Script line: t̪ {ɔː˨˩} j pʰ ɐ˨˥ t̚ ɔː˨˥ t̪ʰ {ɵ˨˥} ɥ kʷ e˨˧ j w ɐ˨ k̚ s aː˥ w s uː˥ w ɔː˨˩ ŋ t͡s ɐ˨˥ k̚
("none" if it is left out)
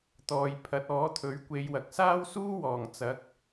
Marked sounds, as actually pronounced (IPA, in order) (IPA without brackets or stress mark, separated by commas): ɔː˨, ɵ˨˥